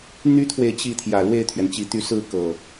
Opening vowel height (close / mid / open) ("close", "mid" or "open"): close